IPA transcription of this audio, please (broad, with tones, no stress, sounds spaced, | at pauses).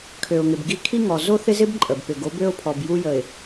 kʰ ø˨ ʊ̯ ŋ ɪ˨ b ɡ i˦ kʰ i˦ ŋ ɔ˨ z o˦ θ ɪ˦ z ɪ˦ b ǃʼ ə˨ b p ɪ˨ ɡ o˨˦ b ø˦ ʊ̯ pʰ ɔ˨ b j u˦ j ə˨ ɪ̯